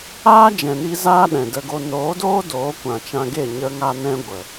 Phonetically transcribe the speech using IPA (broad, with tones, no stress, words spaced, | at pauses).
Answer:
aː˦d͡ʒɛ̃˨ni˧ zaː˦ɗɛ̃˨də˧ɡo˧ noː˨˦doː˦ doː˨˦kʷã˨t͡ʃã˧ɡe˦˨ ɲə˧ŋa˧nɛ̃˧ ɡʷə˨